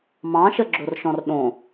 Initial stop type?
click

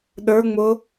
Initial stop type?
implosive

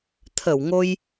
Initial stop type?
aspirated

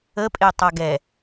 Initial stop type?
ejective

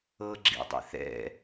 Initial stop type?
click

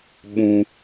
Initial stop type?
implosive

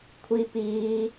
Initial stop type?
aspirated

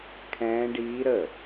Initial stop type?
aspirated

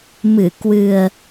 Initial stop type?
plain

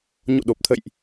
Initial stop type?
implosive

